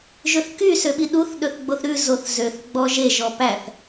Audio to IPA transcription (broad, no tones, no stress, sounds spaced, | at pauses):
ʒ ɵ θ k y s ø ɓ i ɗ u θ ɗ ɵ θ ɡ͡b o θ ɾ ʉ z o θ z ø θ ɡ͡b ɔ ʒ e ʒ ɔ p æ θ